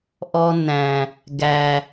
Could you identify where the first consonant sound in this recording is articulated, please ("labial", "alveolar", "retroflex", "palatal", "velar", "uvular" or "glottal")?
glottal